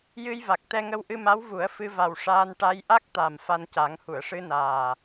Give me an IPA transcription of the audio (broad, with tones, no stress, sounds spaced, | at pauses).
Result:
j ɨ˧ j v a˨˩ k̚ t̪ ɛ˧ ŋ ə˧ w ʔ ɨ˧ m a˧˥ w v u˨˩˦ ə̯ f ɨ˧ v a˨˩ w ʂ aː˧ n ʈ a˧ j ʔ a˦˥ k̚ t̪ a˨˩ m f a˧ n c a˨˩˦ ŋ h u˨˩˨ ə̯ ʂ ɨ˧ n aː˨˩